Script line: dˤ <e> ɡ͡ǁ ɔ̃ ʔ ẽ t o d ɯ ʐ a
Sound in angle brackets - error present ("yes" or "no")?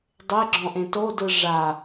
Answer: no